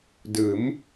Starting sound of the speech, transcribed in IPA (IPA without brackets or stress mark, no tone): d